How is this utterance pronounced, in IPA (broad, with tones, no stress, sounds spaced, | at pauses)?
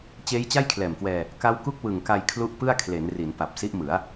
t͡ɕ eː˦˥ j t͡ɕ a˥˩ j kʰ l ɛː˨˩ m k w ɛː˧ | k a˦˥ w k u˥˩ k̚ w ɯ˨˩ ŋ k a˧ j kʰ l u˦˥ ʔ p ɯ˥˩ a̯ kʰ l e˩˦ n r i˩˦ n p a˨˩ p̚ s i˦˥ ʔ m ɯ˩˦ a̯